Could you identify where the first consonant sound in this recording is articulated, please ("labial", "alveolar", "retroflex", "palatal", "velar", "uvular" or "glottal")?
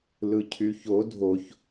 alveolar